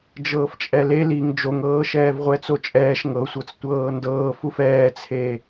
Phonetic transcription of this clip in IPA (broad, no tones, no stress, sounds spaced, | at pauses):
d͡ʒ ɤː f t͡ʃʼ ɛ l e l i ŋ d͡ʒ o ŋ ɤː ʃ ɛː v ʁʷ ɛ t͡s o t͡ʃʼ ɛː ʃ ŋ ɤ sʷ ɤ t͡s tʷ ɤː n d ɤː f u f ɛː t͡sʰ e